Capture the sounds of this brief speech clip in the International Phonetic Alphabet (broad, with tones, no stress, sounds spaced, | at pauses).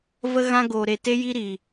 v ə˦ ɣ ã˦ ɡ oː˨ ɾ e˨ t e˦ j i˦ ɾ iː˨